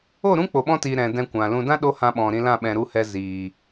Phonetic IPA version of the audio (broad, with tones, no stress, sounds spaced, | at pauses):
o˦˨ ɾ ũ˦ k͡p o˨ ɓ ɔ̃˧ t iː˨ ɾ ɛ̃˨ d ɛ̃˧ kʷ ã˨ l ũ˧ d ã˦ ɗ o˦ h ã˧ ɓ ɔ̃˨ ɾ ĩ˧ l ã˦˨ ɓ ɛ̃˧ ɾ u˦ h ɛ˦ z iː˨